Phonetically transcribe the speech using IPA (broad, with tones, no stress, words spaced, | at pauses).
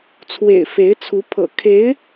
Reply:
t͡sʰwḛ˨˩ɪ̯ fe˧˥ɪ̯t͡sʰu˧˥ pʰɤ̰˨˩kʰe˧˥ɪ̯